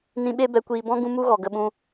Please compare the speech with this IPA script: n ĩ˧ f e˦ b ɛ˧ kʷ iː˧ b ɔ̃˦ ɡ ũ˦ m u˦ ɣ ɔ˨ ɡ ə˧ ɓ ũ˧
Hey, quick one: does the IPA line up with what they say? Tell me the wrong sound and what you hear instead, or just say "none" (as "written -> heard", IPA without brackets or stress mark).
f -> ɓ